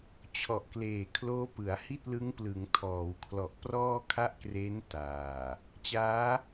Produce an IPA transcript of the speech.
t͡ɕʰ ɔ˨˩ ʔ k l eː˨˩ kʰ l oː˦˥ p ɯ˩˦ a̯ h i˥˩ t̚ l ɯ˦˥ ŋ p l ɯ˩˦ ŋ tʰ ɔː˩˦ w kʰ l ɔ˨˩ ʔ p r ɔː˥˩ kʰ a˥˩ ʔ k r eː˦˥ n t aː˨˩ | t͡ɕ aː˦˥

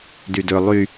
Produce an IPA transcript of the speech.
d y d ɵ lˠ y

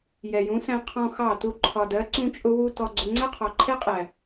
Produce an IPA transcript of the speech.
j ɛ˨ j ũ˨˦ s æ̃˧ qʰ ɔ̃˧ x ɑ˦˨ t u˦˨ ǃʰ ɒ˨ d ɜ˨˦ ǀ ũ˧ t͡ʃʼ ʊ˧ w u˧ t ɔ˧ ɡ͡ǀ ʊ˧ ŋ͡ǀ ɜ˦ qʰ ɔ˨ ǃʰ ɛ˦ qʼ æ˨

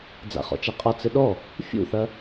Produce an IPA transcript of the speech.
d͡z a̰ χ ɔ̰ t͡ʃ a qʼ ɒ t͡s ɘ ɗ ɔ | fʲ ṵ θ ɐ

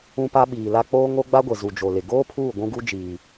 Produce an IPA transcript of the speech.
ũ˦ p a˦ ɓ iː˨ l a˦ k͡p oː˦ ŋ o˦ ɡ͡b a˦ ɡʷ e˨ z u˨ d͡ʒ o˨ l ɪ˨ ɡ oː˦ pʰ uː˦˨ ɡʷ ũ˦ ɡ u˦ d͡ʒ iː˨

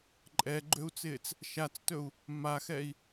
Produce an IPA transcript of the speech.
ǃʼ ɛ ɡ͡ǃ ø u̯ t͡s ɪː t͡s | ʃ a t͡s t ɵ u̯ | m a x ɛ i̯

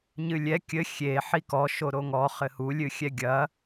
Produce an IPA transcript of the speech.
ɲ ɨ lʲ ɛ kʲ ɘ xʲ e ħ i k ɔ ʃ o ɾ o ŋ ɔ χ ɘ h u lʲ ɨ xʲ ɛ ɡʲ ɐ

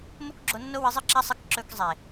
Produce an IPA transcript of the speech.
m o˦ k ɡ͡ǁ o˧ nː o˦ w ɨ˧ zˤ ɨ˦ ǁ a˦ sˤ ɨ˧ k ǁ ɵ˧ k zˤ e˨

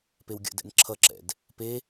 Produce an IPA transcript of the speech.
p e w ɡʲ ə̰ d ɛ̰ n ǁʰ ʌ ǁ ɛ̰ d | p e

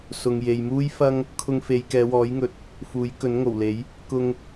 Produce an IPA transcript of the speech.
s ʊ˨ ŋ j e˨ j m uː˥ j f ɐ˥ ŋ | kʰ ʊ˧ ŋ f e˨˧ j k ɛː˨˧ w ɔː˨˥ j ŋ ɵ˨˥ t̚ | f uː˨˥ j k ɵ˨˥ n ŋ o˨˩ w l e˨˥ j | k ʊ˧ ŋ

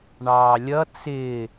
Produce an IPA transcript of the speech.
ɳ ɑː lʲ ʌ t͡s ɪː

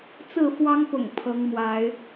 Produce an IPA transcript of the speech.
t͡s ɹ̩˥˨ f w ɑ˦ ŋ p ʊ̰˨˩ ŋ pʰ ɤ˨˦ ŋ m w a˨˦ ɪ̯

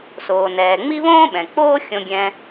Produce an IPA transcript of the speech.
s oː˩ n ɛː˩ ŋ͡m i˥ β õː˥ ɓ ɛ̃˩ k͡p oː˥ xʲ õ˧ ɡʲ ɛ̃˧

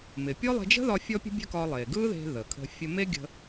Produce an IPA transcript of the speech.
m ɪ˩ pʲ ɔ˥ lˠ e̤˧ d͡ʒ ə̤˥ ð ɒ˧ fʲ ɔ˥ pʲ ə̤˥ bʲ ə̤˥ k ɒ˧ lˠ e˩ ɡ ɯ˥ ð e̤˧ ð ə˩ kʰ ə̤˧ fʲ ə˧ m e˥ ɡʲ ə̤˧

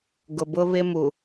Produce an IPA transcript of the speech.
ɡ ʊ˨ b ʊ˦ β ɪ˦ m u˨

